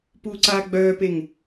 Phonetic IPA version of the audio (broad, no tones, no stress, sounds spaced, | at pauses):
p uː ǀ aː ɡ͡b œː p e ŋ